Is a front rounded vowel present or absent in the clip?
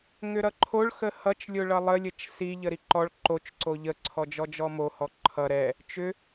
present